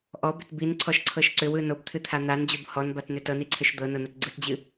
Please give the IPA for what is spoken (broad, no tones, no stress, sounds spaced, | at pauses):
ʔ ɔ b ʏ t b i n ǀʰ ɔ ʃ ǀʰ ɤ ʃ ǀ ʏ w ɯ n o b t̪ʰ ɨ t̪ʰ a n̪ a n d͡ʑ o b h ɔ n b a t n ʏ t ɤ n i ǀʰ ʏ ʃ d̪ ɤ n o n o t ɡ͡ǀ ɯ t d͡ʑ ɨ